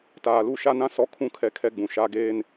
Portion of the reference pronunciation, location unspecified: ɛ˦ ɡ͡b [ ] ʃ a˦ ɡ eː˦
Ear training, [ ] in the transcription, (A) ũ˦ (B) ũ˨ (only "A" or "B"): B